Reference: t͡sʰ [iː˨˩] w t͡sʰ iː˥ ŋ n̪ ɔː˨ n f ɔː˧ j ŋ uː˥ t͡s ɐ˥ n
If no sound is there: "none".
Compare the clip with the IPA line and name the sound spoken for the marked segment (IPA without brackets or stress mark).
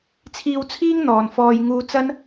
iː˧